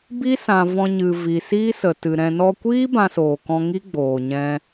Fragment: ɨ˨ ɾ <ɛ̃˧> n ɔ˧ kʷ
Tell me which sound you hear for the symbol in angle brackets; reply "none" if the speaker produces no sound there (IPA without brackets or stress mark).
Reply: ɛ̃˧